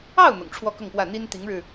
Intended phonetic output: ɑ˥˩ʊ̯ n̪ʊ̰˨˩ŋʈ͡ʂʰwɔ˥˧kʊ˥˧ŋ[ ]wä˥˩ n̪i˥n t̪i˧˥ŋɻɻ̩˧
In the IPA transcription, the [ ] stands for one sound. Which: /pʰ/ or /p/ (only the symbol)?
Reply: p